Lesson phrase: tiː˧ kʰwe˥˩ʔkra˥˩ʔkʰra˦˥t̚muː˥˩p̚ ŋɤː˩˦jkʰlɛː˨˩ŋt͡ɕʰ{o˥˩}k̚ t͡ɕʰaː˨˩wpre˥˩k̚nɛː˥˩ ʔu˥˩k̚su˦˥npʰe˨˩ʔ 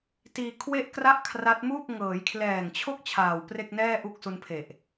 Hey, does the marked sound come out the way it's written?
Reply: yes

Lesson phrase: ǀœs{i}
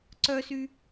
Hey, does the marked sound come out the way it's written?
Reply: no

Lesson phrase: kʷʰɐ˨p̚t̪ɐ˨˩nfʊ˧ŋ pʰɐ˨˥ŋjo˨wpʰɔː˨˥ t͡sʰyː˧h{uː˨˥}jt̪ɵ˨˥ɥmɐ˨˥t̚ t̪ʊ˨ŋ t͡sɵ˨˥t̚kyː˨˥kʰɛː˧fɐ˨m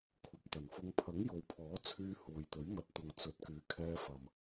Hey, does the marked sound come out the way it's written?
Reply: no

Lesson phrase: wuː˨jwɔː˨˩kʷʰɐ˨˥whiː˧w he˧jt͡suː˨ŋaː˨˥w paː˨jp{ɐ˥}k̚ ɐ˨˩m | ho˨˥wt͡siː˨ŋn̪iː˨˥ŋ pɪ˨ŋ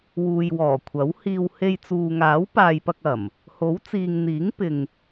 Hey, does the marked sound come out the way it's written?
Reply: no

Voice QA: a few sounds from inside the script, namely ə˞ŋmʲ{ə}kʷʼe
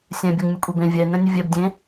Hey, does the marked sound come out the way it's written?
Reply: yes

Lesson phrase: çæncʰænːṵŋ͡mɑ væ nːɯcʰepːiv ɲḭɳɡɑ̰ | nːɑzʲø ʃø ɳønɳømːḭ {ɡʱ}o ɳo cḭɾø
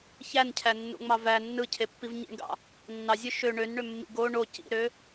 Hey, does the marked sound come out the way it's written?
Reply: no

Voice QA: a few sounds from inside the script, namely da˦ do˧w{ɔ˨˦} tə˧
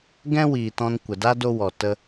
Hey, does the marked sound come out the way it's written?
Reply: no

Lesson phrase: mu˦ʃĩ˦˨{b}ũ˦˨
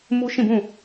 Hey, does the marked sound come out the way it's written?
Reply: yes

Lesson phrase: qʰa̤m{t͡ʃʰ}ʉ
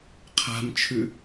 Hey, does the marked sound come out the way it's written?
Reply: yes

